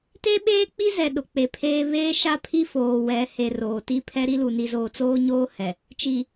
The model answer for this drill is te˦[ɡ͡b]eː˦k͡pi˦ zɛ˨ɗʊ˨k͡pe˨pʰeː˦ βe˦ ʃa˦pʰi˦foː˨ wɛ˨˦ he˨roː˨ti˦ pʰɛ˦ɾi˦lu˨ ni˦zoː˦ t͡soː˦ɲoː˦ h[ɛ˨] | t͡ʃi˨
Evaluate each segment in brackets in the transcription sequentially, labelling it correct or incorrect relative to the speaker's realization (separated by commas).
incorrect, correct